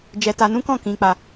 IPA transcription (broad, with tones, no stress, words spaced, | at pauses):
d͡ʒɛ˧ta˧nũ˦kɔ̃˦˨ kĩ˧k͡pa˧